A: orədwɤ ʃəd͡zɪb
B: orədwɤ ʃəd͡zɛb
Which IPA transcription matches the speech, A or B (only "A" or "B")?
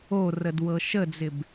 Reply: A